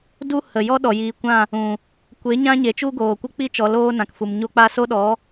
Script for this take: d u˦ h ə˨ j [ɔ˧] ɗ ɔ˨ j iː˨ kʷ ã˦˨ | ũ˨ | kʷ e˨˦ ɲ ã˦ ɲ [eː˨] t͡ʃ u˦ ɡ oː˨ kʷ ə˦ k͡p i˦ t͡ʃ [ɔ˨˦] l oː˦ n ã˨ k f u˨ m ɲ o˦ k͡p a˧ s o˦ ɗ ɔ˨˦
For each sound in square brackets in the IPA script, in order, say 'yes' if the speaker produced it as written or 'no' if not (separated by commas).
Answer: no, no, yes